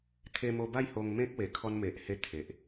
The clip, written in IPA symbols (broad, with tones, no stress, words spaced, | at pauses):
t̪ʰe˧mo˧ba˥˧j ho˧ŋmẽ˦k̚we˨˩ kʰɔ˧nme˨ʔhe˧ t̪ʰe˨ʔ